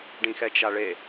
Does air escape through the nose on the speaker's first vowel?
yes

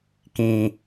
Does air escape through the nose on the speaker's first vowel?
yes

